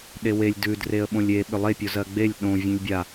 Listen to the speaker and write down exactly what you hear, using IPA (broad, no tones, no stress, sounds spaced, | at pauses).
ɗ e w e lʲ d ʉ d r e ə̯ ɓ õ lʲ e ɓ ʏ lˠ e pʲ o z ɜ ɡ͡b e lʲ ɗ õ vʲ ẽ lʲ bʲ a